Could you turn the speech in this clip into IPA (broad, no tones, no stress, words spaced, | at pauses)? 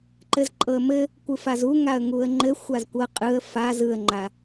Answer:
ǃɘzǃʼɤə̯mɘ | kʷɯfazuŋaə̯ ŋuə̯ŋ͡ǃɘ xʷazkʷɤ qʼɯə̯ faz ɯə̯ŋ͡ǃa